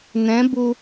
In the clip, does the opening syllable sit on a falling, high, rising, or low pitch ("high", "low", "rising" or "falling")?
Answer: rising